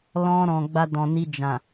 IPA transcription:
l ɔ̃˧ ɾ ɔ̃˨ ɡ͡b a˧ d ɔ̃˨ n i˧ d͡ʒ ã˨

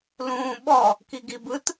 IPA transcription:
l ũː ɓ ɔ | k i ɡ i b ɯ t

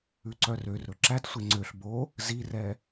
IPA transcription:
ʉ ǀ œ r ø r ɾ ɵ ǁ æ t sʷ e ŋ͡ǀ ø ɬ b o | z i r ɛ

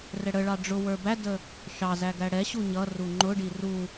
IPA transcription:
r ɛ ɽ ə ɭ ɑ ɖ͡ʐ ʊ w ə˞ b æ d ə | ʃ ɑ z æ ɡ æ ɽ ɛ ɕ u ɲ ʌ r u ŋ͡ǃ ʊ ɖ i r u

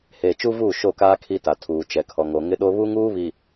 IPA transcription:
h eː˨ t͡ʃ u˦ v uː˦˨ ʃ o˦˨ k aː˦ kʰ i˦ t a˨ tʰ uː˨ t͡ʃ ɛ˨ kʰ ɔ˨ ŋ o˨ ŋ ɪ˦ ɗ o˦ β u˦ ŋ uː˦ β i˨

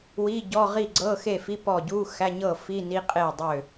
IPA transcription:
w i˧˥˧ ɟ ɔ˧˥˧ ʁ i˥˨ ɡ͡ǀ ɤ˧˥˧ x e˥˨ f i˧˥˧ p ɔ˥˨ ɟ u˧˥˧ x æ˧˥˧ ɲ ɤ˥˨ f i˧˥˧ n i˧˥˧ qʼ e˥˨ dˤ ø˥˨

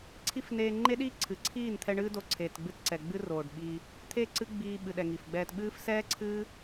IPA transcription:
ǀʰ i˦ f n eː˧ ŋ͡ǃ e˦ ɗ iː˦ ǀʰ ɨ˨ ǀʰ iː˦˨ n t̪ʰ ɛ˧ ɳ ɨ˦ d o˧ ǀʰ eː˨ t ɡ͡b ɨ˧ t ǀ ɛ˨ ɡ͡b ɨ˦ r oː˨ ɖ ɓ iː˧ | t̪ʰ e˦˨ ǀ ɨ˦ ɡ͡b iː˧ ɓ ɨ˨ ɗ ɛ˨ ŋ i˨ f ɡ͡b ɛː˧ t ɓ ɨː˦ f s ɛː˦ ǀʰ ɨː˦

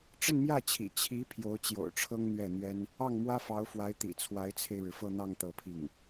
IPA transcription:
ʈ͡ʂ ə˥˧ n m j ä˥˩ t͡ɕʰ ḭ˨˩ t͡ɕʰ i˧˥ pʰ j o˧˥ ʊ̯ t͡ɕ j o̰˨˩ ʊ̯ ʈ͡ʂʰ ɤ˥ ŋ n̪ ɥ ɛ˥˩ n̪ ɥ ɛ˥ n | ɑ˥˩ ŋ m w ä˥ f ɑ˧˥ ʊ̯ f w a˧˥ ɪ̯ t̪ ḭ˨˩ t͡sʰ w a˧˥ ɪ̯ t͡sʰ e˧ ɪ̯ ɻ ɻ̩˩ f ɤ˥˧ n̪ ɑ˥˧ ŋ t̪ ɤ˥˧ pʰ i˥˩ ŋ

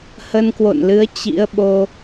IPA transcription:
h ə˧ n k w o̰˧˨ n l ɨ˨˦ ə̯ t͡ɕ ḭ˧˥ ə̯ ɓ o˧

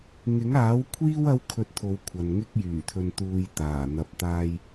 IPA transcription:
ŋ ɪ˨˥ ŋ aː˨˥ w kʷʰ iː˥ w ɐ˥ w kʰ ɵ˧ t̚ t̪ʰ o˨˧ w kʷʰ ɐ˨ n ŋ ɪ˧ k̚ j yː˨˩ t̪ʰ ɵ˨ n t̪ uː˨ j t̪ aː˨˩ n̪ ɐ˨ p̚ t̪ aː˨ j

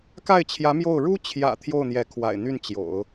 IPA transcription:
k a˥˩ ɪ̯ t͡ɕʰ j ä˧˥ m j o˥˩ ʊ̯ ɻ u˥ t͡ɕʰ j ä̰˨˩ t̪ʰ j o˥˩ ʊ̯ n̪ j ɛ˧˥ kʰ w a̰˨˩ ɪ̯ n̪ y˥˩ n t͡ɕ j o̰˨˩˦ ʊ̯

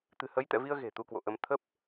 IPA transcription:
t̪ ɨ̤˨˩ h ə˨˦ j t̪ ɛ̰˧˨ v i˧ ə̯ ɣ e̤˨˩ t̪ u˧ k w o̰˧˨ ʔ ə˧ m t̪ʰ ə˦˥ p̚

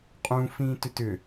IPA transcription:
qʼ ũ f ĩː t ʏ t ʏ

